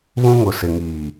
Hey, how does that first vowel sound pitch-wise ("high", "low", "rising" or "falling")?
high